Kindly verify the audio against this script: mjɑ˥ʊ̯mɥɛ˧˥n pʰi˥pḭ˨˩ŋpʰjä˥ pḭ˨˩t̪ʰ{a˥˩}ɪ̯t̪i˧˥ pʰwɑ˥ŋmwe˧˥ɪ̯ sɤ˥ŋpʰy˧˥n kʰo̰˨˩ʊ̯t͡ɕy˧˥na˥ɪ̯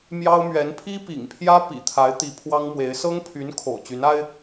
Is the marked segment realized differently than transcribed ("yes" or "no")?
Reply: yes